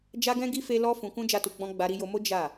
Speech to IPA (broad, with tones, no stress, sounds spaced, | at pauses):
d͡ʒ a˦ ɡ ɛ̃˦ ɡ i˦ f e˦ l ɔ˦ f ũ˧ k ũ˦ d͡ʒ a˦ t u˧ ɡ͡b ɔ̃˦ ɡ͡b a˧ ɾ i˧ j o˧ m o˦ d͡ʒ a˦˨